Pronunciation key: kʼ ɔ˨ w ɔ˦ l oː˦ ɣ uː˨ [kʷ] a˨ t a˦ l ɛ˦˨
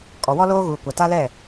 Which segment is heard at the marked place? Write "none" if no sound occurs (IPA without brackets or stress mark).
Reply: kʷ